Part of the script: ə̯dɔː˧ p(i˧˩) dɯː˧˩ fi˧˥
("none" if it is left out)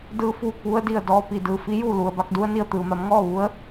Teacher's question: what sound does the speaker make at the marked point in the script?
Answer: i˩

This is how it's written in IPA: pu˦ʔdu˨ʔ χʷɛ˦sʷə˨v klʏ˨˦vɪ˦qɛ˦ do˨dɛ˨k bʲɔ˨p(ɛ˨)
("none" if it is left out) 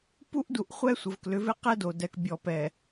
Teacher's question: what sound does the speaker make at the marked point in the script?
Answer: ɛ˨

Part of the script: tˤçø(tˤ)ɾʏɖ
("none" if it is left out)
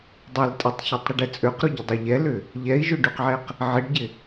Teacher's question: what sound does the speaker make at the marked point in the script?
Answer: tˤ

